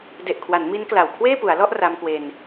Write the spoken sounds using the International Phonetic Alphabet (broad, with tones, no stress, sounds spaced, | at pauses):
d e˨˩ ʔ kʰ w a˩˦ n m i˦˥ n k l a˨˩ w kʰ w eː˥˩ p u˩˦ a̯ l ɔ˥˩ ʔ r a˧ m k w e˧ n